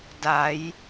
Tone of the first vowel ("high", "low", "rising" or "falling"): rising